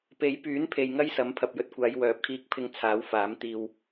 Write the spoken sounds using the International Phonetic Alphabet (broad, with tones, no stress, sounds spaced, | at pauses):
p e˨˥ j p yː˨˥ n pʰ e˨ j ŋ ɐ˥ j s ɐ˨˥ m pʰ ɐ˨ p̚ j ɵ˧ t̚ kʷ aː˨˧ j w œː˨˥ p̚ kʰ iː˧ k̚ pʰ ɪ˧ ŋ t͡sʰ aː˨˥ w f aː˨˥ m t̪ iː˧ w